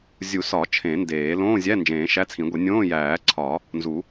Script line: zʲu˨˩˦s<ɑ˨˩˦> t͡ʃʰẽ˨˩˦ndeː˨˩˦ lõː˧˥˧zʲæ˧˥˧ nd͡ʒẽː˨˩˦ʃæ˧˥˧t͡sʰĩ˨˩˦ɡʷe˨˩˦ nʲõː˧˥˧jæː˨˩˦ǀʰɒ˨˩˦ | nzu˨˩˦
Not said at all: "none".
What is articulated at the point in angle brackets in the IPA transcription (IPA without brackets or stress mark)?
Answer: ɒ˨˩˦